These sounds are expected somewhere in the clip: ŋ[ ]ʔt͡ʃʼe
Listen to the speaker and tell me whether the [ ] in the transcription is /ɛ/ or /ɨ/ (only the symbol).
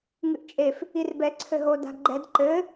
ɨ